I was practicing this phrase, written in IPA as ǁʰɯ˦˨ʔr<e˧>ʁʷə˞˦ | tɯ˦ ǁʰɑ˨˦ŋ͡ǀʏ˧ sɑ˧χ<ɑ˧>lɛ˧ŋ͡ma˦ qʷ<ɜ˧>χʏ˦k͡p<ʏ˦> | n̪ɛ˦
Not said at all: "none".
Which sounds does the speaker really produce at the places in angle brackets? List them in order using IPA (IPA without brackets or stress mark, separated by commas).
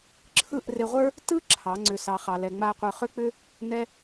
e˧, ɑ˧, ə˞˧, ʏ˦